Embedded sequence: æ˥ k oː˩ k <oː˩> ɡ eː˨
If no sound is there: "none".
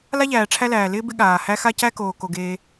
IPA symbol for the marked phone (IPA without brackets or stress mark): o˩